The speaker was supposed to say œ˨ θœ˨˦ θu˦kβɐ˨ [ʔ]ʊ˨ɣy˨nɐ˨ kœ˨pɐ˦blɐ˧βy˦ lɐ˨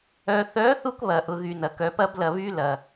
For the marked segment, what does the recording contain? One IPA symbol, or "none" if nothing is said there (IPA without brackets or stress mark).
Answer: ʔ